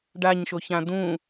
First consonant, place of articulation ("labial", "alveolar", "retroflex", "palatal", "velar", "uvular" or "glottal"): retroflex